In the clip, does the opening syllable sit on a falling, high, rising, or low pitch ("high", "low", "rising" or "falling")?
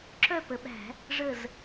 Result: falling